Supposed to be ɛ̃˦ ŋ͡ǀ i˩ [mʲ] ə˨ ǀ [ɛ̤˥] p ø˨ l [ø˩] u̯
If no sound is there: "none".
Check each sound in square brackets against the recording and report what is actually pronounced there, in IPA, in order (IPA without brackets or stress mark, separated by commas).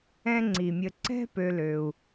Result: mʲ, ɛ̤˥, ø˩